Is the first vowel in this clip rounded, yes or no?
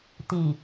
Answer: no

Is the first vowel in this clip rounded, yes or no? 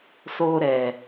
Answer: yes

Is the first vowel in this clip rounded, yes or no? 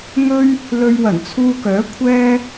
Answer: yes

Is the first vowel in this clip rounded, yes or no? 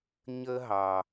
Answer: no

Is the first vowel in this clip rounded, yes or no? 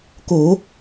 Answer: yes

